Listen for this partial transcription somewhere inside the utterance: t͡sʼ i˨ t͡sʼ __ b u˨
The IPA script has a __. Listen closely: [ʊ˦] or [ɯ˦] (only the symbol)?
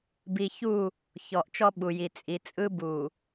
ɯ˦